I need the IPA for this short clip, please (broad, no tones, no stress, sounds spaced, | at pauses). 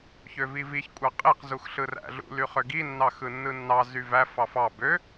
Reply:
ç ø v i v i ç kʷʼ ɑ qʼ e q z u x ɬ ɯ r æ̰ ɮ ṵ l y χ ø ɡ i nː ɑ x ɯ nː ɯ nː ɑ z y v æ f ɑ f ɑ b ø